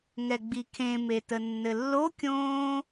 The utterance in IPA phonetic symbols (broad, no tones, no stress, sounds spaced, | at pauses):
ŋ ɛ ɡ͡b i kʰ ẽ m e t ə nː ɘ lː o kʲ õː